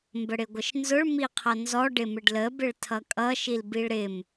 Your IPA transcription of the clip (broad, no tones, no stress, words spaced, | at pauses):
mbəɽɪɡʷəʃnzʊɭ miqʰʌnzɔ ɖɪmɪɖlə bɪɭtʰʌkʼʌ ʃilbiɭɾɪm